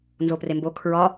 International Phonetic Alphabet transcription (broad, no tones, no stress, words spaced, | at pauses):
nzoprembo kʰɹɒ